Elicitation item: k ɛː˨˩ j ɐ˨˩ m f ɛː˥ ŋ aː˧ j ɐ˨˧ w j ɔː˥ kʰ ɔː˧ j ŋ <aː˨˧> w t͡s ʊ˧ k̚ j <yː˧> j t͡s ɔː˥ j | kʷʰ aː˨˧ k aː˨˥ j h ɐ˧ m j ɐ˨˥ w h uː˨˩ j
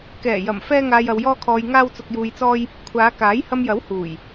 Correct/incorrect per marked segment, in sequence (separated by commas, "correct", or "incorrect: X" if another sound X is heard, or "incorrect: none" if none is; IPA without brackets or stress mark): incorrect: aː˥, incorrect: uː˧